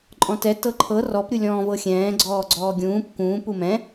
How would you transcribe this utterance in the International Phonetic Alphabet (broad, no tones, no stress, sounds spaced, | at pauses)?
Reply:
ǃʼ ɔ̃ t ɛ t ɤ ǃʰ ɤ r ɔ p ɾʲ u lʲ ɔ̃ː v ɤ xʲ ɛ̃ː ɡ͡ǀ ɔː ɡ͡ǀ ɔː ɡʲ ũː p k ũː p u m ɛ̃